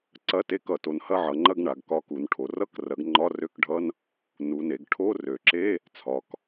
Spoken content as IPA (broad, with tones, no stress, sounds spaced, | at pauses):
ǀ ɐ˧˥˧ t e˧˥˧ k ʌ˩˧ t o˩˧ n h ɐ˧˥˧ ʕ ʌ˩˧ ŋ͡ǃ ɐ˧˥˧ ɡ ɳ a˩˧ ɡ k ɒ˧˥˧ k u˩˧ n ʈʰ o˩˧ r ʌ˧˥˧ k r ɐ˩˧ ɡ ŋ͡ǃ ɒ˧˥˧ r ø˧˥˧ k ɖʱ ʌ˧˥˧ n | n u˩˧ n e˩˧ ɡ ʈʰ o˧˥˧ r ø˩˧ ǁ e˧˥˧ | t͡sʰ ɒ˩˧ k